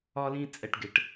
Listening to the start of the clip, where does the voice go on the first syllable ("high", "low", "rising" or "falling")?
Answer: high